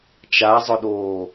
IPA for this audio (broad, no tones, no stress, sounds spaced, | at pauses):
t͡ʃ a zˤ ʊ ɗ oː